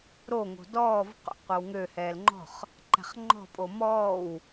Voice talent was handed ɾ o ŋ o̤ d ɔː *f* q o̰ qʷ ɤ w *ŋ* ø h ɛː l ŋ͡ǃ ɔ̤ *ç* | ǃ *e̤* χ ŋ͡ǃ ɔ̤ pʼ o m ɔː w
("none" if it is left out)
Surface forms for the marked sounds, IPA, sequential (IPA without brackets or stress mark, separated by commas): v, ŋ, χ, ɛ̤